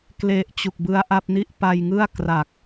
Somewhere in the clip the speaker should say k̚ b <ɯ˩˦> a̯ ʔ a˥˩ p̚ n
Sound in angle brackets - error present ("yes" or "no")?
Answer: yes